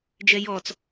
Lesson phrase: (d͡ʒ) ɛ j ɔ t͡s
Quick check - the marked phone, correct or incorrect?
correct